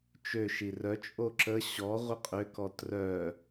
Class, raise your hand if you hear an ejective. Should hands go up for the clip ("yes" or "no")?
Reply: yes